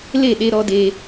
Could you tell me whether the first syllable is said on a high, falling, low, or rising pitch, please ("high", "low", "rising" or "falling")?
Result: falling